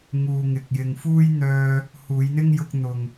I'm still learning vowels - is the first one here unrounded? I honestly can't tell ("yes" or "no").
no